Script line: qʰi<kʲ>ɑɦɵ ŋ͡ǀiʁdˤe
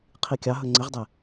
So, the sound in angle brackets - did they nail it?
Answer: yes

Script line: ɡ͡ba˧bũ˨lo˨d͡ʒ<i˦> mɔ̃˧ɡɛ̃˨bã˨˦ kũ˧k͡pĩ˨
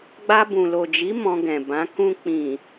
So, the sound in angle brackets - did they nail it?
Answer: no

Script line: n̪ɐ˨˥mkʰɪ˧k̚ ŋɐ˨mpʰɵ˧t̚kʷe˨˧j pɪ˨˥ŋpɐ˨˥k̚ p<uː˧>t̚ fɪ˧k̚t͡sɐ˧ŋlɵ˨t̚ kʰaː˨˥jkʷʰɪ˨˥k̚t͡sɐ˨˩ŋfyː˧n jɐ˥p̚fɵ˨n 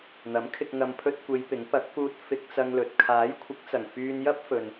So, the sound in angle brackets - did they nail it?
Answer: yes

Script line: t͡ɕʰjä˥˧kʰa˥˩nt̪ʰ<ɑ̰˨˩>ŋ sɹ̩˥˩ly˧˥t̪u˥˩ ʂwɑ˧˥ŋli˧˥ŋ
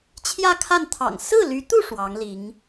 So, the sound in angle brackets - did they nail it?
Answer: yes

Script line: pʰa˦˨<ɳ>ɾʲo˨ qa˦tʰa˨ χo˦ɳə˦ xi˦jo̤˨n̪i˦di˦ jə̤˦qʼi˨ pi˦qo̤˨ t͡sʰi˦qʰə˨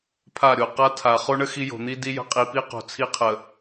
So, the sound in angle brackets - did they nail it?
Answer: no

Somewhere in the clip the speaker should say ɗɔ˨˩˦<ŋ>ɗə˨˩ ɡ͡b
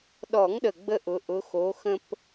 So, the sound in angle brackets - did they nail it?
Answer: yes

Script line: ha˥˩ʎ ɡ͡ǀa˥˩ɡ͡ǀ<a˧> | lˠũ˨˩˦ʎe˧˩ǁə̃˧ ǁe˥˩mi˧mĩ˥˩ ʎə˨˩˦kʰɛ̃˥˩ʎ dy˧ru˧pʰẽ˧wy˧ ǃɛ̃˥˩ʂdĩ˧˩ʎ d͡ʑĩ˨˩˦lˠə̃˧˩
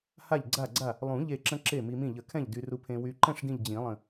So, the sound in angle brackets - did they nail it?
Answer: no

